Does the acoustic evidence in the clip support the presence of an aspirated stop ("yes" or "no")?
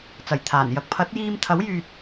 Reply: yes